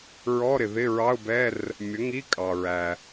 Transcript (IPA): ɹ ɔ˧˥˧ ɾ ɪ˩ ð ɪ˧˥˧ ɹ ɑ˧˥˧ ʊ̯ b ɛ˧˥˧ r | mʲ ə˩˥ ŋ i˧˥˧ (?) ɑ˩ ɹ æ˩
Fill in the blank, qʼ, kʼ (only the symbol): kʼ